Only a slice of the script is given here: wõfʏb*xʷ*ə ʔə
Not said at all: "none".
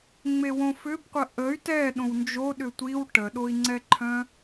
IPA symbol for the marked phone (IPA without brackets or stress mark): qʷ